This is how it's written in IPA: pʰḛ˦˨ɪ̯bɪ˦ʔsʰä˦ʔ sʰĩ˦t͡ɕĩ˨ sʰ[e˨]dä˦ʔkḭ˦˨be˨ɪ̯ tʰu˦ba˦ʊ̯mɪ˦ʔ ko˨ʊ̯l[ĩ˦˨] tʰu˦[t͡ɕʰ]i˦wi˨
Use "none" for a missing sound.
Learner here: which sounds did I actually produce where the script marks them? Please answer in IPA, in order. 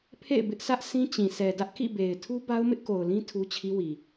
ɛ˨, ĩ˦, t͡ɕʰ

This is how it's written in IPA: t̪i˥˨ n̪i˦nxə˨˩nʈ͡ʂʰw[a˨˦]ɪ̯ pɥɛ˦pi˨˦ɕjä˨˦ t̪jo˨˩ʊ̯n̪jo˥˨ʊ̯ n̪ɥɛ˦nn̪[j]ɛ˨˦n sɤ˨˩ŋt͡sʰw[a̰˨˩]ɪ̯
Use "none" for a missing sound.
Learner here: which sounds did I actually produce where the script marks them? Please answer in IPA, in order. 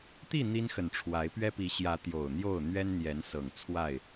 a˨˦, j, a˥˨

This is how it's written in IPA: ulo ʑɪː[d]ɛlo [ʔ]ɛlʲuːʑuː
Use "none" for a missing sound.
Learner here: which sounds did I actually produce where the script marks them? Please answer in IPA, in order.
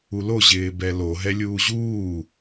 b, ɦ

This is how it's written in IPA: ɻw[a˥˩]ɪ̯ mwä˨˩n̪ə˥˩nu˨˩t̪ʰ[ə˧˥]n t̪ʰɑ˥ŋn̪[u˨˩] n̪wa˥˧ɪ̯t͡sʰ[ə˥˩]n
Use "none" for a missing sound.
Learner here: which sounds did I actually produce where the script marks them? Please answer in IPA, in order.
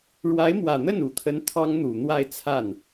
a˧˥, ə˧˥, u˨˩, a˥˩

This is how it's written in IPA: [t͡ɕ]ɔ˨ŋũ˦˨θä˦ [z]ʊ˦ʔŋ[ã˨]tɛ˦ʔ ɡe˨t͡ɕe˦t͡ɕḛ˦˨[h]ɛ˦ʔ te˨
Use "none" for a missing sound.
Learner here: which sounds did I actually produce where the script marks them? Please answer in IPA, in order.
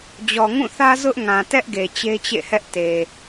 d͡ʑ, z, ã˨, h

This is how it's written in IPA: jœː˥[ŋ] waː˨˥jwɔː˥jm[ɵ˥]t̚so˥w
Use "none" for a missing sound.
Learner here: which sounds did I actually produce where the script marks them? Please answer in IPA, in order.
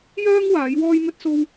ŋ, ɵ˥

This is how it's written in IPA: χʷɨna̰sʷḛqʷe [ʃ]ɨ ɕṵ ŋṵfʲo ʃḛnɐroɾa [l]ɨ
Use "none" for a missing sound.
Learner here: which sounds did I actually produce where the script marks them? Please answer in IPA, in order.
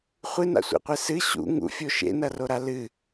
s, l

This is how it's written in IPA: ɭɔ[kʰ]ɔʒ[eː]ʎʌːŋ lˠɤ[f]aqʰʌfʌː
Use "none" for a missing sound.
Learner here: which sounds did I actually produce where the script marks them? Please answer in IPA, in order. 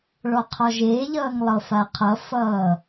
qʰ, eː, f

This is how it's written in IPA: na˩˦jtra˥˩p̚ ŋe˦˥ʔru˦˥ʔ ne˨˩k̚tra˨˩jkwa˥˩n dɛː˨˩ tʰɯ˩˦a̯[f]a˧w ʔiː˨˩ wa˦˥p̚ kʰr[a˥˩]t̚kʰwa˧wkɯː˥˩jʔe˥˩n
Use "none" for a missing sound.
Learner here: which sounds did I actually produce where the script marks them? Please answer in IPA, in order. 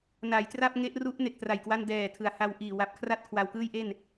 h, a˥˩

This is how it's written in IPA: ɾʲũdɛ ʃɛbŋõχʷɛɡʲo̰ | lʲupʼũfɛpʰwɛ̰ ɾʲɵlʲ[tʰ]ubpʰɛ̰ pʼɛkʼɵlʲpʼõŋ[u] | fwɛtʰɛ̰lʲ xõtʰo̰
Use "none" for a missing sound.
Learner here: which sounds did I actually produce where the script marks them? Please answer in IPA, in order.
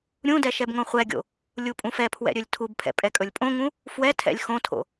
tʰ, ũ

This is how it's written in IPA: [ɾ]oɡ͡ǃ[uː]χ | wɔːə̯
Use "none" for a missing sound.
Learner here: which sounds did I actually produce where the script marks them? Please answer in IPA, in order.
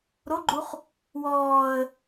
ɾ, u

